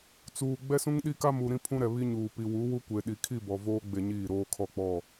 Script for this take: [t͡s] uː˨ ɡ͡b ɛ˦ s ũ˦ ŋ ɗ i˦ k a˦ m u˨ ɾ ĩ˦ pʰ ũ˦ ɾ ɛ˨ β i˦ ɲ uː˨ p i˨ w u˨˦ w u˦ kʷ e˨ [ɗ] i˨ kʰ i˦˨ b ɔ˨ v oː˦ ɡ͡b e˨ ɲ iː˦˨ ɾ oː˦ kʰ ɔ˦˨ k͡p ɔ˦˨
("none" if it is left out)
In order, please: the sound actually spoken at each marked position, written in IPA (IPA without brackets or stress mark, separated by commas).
t͡s, ɗ